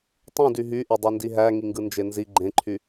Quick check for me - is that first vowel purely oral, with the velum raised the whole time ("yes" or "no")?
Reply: no